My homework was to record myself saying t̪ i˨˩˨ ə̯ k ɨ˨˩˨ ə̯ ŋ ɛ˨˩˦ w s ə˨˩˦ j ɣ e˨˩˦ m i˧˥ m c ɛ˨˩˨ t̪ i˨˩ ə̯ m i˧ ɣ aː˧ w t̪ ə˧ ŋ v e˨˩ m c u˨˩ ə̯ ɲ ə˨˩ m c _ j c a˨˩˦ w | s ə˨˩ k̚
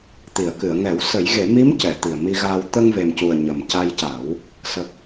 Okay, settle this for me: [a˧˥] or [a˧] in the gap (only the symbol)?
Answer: a˧